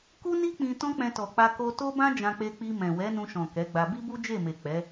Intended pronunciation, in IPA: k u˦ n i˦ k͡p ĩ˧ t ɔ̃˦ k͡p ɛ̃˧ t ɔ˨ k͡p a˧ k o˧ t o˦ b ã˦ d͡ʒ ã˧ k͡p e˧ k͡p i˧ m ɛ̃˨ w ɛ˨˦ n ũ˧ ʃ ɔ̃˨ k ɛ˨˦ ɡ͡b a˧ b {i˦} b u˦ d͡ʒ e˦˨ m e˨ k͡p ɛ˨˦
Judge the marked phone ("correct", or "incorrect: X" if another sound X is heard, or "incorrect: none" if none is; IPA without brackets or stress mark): correct